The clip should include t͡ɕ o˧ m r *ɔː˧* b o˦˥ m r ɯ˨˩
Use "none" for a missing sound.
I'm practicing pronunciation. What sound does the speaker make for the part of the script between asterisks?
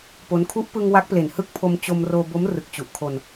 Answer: oː˧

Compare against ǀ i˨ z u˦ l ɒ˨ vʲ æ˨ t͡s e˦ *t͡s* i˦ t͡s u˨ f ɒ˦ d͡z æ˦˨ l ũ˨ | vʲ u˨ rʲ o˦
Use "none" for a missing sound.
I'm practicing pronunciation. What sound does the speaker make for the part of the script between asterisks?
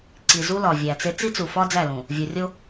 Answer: t͡s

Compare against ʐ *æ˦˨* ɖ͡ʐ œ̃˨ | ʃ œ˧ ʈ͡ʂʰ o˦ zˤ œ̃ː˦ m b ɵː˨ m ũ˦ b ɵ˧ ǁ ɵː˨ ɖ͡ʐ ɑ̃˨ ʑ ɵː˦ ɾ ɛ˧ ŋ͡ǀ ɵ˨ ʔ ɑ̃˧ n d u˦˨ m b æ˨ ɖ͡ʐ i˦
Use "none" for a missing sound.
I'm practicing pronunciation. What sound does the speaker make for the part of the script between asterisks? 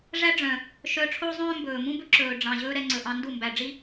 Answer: æ˦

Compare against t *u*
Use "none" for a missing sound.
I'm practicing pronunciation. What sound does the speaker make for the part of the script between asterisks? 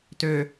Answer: ø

